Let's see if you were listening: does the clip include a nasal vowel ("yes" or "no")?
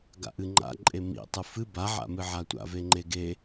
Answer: no